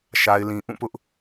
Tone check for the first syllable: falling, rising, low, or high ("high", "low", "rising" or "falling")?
low